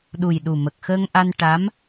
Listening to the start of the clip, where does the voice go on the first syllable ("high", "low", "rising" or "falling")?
low